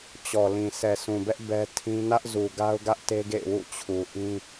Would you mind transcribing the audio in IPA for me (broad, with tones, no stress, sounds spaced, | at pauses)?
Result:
t͡ɕ ɔ˨ l ĩ˨ s ɛ˨ s ũ˨ b ɛ˦ ʔ b ɛ˦ tʰ ĩ˦ n ä˦ ʔ z u˨ ɡ a˦ ʊ̯ ɡ ä˦ ʔ t e˦ ɡ ḛ˦˨ ɪ̯ w ṵ˦˨ t͡ɕʰ u˨ ʔ ĩ˦